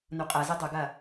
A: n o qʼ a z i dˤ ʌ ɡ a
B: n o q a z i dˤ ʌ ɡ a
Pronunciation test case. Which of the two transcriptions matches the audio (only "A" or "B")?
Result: A